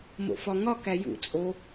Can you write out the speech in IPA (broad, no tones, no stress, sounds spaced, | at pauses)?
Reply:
m o̰ f ɒ ŋ ɒ k æ j ṵ t͡sʼ o